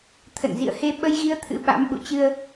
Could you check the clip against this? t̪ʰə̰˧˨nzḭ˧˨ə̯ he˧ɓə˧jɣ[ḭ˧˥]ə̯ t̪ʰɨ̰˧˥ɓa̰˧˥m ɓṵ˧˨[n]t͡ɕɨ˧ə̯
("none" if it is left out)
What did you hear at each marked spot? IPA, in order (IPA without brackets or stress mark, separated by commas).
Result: i˧, none